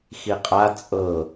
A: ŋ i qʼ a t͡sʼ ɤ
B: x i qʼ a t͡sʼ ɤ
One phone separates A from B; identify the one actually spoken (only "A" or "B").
B